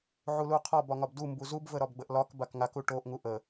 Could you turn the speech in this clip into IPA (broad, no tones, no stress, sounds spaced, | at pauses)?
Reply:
ʕ u l u qʰ ɒ b ɒ ŋ ɒ b d u m b u z u b v ə ɾ ɒ b ɡ͡b ə ʔ l ɒ k b a k ŋ a k u ʈ o ʔ ŋ u ʔ ə